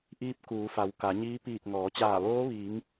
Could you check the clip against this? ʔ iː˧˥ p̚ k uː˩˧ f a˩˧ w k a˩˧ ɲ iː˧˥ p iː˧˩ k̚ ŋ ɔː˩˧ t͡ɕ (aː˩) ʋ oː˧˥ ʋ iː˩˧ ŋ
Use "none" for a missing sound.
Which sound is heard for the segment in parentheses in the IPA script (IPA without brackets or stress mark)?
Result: aː˧˩